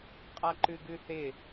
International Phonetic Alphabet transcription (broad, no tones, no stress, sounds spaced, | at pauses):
qʼ a ǃ ʉ ɡ ʉ θ ɪ